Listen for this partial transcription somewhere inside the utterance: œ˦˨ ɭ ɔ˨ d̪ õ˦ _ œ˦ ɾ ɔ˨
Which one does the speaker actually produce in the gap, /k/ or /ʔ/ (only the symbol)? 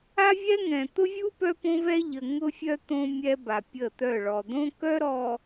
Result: k